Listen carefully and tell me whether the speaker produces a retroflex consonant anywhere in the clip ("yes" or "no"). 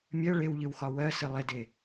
yes